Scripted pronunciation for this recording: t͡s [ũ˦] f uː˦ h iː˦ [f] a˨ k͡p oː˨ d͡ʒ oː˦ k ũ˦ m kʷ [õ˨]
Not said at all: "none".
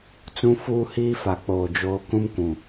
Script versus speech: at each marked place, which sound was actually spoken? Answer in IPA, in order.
ũ˦, f, ũ˨

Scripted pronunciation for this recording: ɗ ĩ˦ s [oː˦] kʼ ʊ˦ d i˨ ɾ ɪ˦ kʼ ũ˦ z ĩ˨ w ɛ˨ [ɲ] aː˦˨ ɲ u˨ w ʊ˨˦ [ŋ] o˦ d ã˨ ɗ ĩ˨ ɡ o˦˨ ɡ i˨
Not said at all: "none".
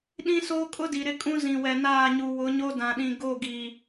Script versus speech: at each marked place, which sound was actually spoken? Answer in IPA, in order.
oː˦, n, ɲ

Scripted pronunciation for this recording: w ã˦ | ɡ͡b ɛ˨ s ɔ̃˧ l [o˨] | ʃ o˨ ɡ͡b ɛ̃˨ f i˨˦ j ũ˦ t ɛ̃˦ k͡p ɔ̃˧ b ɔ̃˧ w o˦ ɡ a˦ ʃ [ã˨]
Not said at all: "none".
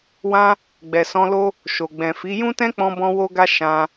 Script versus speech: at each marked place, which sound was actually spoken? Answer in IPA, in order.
o˦, ã˧

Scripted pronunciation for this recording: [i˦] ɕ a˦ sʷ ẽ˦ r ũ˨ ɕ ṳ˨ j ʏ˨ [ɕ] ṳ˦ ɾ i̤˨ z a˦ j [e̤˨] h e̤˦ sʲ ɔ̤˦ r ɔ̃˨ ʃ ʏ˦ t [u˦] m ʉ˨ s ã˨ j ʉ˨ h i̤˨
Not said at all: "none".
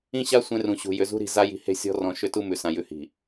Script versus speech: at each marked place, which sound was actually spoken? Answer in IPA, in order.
ĩ˦, z, i̤˨, u˦

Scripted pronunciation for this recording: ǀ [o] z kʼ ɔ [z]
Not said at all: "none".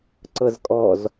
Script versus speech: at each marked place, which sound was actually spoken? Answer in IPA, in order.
ɤ, z

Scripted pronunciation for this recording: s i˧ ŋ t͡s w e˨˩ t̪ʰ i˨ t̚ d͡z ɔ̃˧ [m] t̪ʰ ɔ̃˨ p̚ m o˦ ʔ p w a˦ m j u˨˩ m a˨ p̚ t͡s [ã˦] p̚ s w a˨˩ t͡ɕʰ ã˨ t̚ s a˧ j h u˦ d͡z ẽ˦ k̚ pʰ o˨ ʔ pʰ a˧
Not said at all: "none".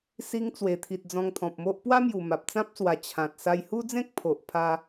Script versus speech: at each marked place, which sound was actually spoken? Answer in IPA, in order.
ŋ, ã˦

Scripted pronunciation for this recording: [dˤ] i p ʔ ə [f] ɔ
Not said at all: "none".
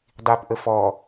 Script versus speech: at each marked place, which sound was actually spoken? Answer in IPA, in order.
dˤ, f

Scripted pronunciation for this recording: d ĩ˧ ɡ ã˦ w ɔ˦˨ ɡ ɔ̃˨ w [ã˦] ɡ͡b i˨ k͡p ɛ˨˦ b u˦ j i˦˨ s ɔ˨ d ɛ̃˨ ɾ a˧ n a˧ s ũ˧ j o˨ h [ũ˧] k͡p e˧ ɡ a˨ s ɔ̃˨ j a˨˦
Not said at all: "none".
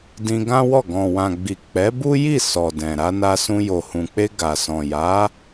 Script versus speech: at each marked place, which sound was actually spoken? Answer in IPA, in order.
ã˨, ũ˨

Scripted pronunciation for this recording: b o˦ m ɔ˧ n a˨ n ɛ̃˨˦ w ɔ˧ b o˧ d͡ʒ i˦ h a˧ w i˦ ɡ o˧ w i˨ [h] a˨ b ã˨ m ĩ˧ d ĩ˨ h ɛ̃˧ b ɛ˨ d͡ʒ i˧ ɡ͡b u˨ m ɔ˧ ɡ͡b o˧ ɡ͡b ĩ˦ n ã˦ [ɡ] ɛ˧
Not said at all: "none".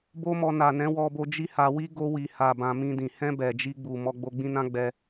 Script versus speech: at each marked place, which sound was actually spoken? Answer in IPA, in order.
h, ɡ͡b

